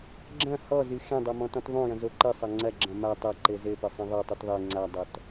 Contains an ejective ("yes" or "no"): no